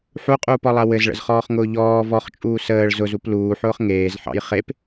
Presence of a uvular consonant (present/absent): present